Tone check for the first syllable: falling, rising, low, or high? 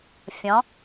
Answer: rising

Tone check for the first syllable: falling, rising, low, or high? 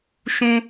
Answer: high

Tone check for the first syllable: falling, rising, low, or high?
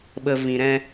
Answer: low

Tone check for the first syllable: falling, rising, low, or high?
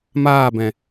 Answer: falling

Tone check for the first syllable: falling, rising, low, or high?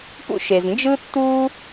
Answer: high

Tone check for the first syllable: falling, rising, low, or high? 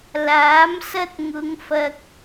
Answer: rising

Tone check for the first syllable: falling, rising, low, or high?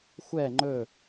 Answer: falling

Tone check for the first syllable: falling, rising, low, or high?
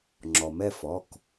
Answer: low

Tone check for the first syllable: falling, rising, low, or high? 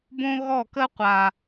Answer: high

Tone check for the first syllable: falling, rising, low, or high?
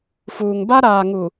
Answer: low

